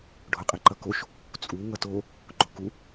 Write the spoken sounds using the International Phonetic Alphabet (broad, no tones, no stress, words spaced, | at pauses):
ɖʱoqʼiǃʌkoʃ | t͡sʼu ŋʌto | ɡ͡ǃoku